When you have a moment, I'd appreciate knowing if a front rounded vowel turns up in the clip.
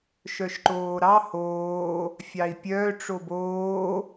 yes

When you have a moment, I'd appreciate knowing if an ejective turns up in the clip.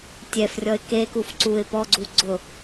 no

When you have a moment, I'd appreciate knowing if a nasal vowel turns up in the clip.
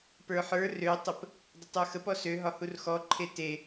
no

